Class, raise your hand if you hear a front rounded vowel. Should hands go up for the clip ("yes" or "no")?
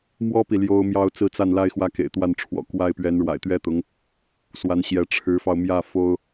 no